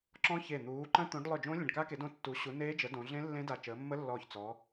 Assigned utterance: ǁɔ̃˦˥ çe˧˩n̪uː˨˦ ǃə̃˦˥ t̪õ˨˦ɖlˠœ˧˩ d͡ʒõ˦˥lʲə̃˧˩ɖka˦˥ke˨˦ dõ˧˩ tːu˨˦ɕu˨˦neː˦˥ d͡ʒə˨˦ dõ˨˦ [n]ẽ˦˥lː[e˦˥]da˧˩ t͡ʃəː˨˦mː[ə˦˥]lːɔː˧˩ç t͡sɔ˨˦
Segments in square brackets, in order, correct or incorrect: incorrect: ɮ, incorrect: ẽ˦˥, correct

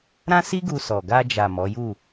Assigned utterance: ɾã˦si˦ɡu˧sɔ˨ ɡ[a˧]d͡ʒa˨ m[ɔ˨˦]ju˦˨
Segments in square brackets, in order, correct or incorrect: correct, correct

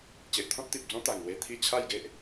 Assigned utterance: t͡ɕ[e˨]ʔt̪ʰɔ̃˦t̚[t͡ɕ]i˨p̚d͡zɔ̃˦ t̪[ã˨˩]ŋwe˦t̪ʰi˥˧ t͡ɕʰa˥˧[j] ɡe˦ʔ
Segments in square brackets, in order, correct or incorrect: correct, incorrect: t̪, incorrect: a˨˩, correct

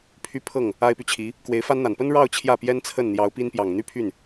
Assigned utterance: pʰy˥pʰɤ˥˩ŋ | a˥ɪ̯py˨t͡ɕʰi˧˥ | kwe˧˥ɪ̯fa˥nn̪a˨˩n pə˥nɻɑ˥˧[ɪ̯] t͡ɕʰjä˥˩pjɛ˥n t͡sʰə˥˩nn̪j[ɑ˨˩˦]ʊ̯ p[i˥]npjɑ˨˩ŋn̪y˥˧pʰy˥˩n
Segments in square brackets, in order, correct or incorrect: incorrect: ʊ̯, incorrect: ɑ˧˥, correct

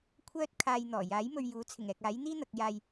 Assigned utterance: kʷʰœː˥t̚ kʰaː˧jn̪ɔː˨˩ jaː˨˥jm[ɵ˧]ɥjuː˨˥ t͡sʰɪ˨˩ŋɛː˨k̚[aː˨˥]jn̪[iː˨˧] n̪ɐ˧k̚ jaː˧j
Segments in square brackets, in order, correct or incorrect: correct, correct, incorrect: iː˥

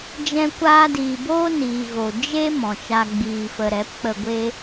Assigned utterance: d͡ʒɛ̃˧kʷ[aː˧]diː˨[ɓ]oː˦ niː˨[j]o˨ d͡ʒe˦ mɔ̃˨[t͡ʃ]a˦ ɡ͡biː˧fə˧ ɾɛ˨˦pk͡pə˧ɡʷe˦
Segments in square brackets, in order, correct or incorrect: correct, incorrect: b, incorrect: ɣ, correct

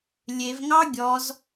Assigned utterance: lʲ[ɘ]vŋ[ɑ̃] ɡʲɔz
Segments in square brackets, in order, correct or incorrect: incorrect: e, incorrect: ɑ

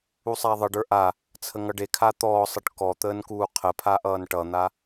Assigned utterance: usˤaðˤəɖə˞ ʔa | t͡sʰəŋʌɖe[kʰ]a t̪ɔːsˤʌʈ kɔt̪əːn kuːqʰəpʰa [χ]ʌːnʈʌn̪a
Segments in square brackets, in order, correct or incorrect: correct, incorrect: ʔ

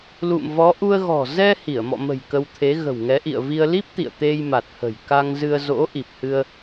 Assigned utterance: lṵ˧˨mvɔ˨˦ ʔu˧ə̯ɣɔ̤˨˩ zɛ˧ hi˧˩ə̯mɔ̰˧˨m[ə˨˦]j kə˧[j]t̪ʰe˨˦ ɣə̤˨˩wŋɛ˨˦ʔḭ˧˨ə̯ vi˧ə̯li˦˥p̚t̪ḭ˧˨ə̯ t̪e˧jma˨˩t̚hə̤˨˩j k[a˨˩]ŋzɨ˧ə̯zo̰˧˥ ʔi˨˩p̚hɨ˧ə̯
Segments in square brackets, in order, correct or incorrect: incorrect: ə̤˨˩, incorrect: w, incorrect: a˧

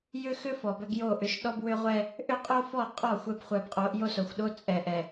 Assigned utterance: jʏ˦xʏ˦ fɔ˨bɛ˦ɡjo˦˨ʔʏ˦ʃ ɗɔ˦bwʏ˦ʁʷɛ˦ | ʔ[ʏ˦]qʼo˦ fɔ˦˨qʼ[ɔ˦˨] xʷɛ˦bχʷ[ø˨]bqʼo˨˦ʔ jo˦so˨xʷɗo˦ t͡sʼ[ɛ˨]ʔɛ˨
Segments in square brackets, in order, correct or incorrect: correct, correct, incorrect: ɛ˨, correct

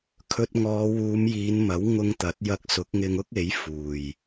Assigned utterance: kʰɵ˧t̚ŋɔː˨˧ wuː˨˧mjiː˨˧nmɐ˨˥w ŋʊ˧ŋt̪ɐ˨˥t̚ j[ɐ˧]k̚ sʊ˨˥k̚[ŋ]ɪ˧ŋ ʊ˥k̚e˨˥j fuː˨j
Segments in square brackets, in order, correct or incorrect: correct, correct

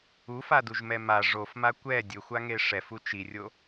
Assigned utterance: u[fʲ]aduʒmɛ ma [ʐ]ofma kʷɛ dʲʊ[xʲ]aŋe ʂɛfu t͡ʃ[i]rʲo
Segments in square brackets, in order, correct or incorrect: incorrect: f, correct, incorrect: xʷ, correct

